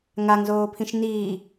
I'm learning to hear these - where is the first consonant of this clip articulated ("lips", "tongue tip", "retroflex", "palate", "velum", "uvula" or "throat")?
velum